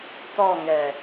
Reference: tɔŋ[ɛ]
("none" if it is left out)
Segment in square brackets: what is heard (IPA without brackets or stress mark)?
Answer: ɛ